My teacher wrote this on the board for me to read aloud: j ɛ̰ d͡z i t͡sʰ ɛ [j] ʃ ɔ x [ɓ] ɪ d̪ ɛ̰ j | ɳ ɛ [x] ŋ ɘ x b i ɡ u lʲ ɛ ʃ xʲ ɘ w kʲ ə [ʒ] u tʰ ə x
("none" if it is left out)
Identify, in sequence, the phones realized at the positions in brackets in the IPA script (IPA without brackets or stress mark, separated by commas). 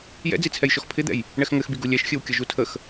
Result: j, pʰ, x, ʒ